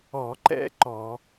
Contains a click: yes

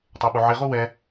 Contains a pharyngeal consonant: yes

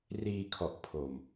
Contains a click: no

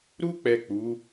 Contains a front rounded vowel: no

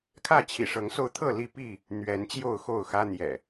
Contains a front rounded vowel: no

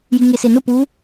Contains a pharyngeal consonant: no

